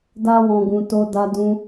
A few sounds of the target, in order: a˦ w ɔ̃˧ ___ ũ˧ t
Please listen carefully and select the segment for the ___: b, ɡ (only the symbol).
ɡ